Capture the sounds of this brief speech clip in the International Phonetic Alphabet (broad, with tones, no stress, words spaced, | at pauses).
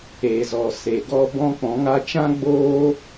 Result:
e˨zɔ˨ se˨ɡɔ˦ bɔ̃˦ k͡pɔ̃˨˦ŋa˦ t͡ʃã˦ ɡ͡boː˦